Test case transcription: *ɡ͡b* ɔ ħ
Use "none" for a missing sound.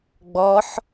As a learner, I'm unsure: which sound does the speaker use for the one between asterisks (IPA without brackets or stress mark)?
ɡ͡b